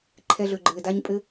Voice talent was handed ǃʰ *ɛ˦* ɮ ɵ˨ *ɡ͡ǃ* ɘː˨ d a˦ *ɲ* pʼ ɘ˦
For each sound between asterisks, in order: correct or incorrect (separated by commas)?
incorrect, correct, correct